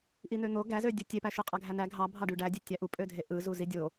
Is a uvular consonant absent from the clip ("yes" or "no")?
no